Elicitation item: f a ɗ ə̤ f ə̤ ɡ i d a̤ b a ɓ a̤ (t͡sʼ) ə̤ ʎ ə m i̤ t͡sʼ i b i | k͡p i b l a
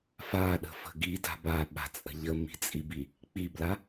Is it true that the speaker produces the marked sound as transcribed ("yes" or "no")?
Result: yes